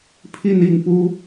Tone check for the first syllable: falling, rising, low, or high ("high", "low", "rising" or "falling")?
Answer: falling